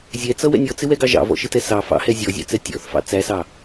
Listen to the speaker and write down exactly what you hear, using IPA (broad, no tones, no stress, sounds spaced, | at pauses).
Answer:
zʲ ɛ t͡s ʌ w ɛ̰ nʲ ɔ t͡s ɪ w ɛ ɡ ɑ ʒ ɑ̰ v ɔ̰ ʃ ɪ t ɛ s ɑ f ɑ̰ h ɛ zʲ ɔ zʲ ɑ̰ t͡s ɛ tʲ ɔ̰ θ f ɑ̰ t͡s æ s ɑ